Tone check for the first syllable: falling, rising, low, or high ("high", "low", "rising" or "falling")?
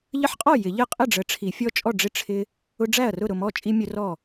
high